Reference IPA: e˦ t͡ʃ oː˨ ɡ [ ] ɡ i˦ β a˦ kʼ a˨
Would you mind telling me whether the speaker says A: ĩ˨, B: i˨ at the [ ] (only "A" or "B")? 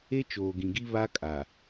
A